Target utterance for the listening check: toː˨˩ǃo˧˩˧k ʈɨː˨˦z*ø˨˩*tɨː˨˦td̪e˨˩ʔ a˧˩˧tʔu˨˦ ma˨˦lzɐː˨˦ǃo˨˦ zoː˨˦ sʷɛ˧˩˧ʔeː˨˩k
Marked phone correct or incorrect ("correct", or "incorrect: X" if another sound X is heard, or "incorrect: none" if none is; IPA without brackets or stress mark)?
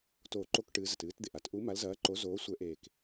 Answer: incorrect: ɘ˨˩